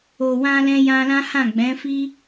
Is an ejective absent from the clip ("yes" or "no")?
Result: yes